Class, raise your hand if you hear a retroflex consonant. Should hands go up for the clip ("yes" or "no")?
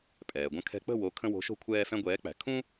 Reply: no